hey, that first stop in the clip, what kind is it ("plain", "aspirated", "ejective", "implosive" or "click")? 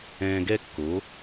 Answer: plain